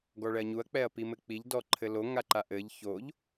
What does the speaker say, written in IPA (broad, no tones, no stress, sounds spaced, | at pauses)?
ɡ ɔ ɭ ɛ ɐ̯ ɲ u ɐ̯ k͡p ɛ ɐ̯ p i m ɘ k͡p i ʎ d ɔ ǃʰ ɘ l o ŋ a ǃ a ʔ ɘ ʎ ç o ʎ